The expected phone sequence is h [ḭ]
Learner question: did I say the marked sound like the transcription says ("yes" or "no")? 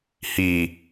no